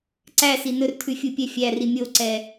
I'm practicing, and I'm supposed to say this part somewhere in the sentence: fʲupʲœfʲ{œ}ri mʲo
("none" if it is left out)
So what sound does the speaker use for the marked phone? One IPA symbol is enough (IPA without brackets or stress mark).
æ